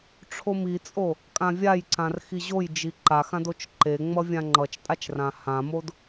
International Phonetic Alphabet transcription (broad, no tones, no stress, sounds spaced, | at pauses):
ʈ͡ʂʰ o m i t͡sʼ o | kʼ ã vʲ a j ǀ ã r x i ʑ o j d͡ʒ i ǃ a x ã d o t͡ʃ ǃ e ŋ͡m ʌ vʲ ã ŋ͡ǃ ʌ t͡ʃ tʼ a t͡ʃ r ã h ã m o d